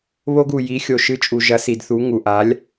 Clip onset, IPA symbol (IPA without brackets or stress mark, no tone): β